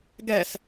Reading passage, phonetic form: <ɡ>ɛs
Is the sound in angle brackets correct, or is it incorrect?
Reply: correct